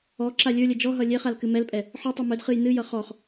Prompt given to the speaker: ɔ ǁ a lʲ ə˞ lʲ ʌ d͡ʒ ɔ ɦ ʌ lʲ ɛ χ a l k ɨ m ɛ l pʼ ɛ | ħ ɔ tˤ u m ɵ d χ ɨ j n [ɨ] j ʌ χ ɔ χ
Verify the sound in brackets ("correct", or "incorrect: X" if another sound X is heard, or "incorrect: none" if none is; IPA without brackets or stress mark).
correct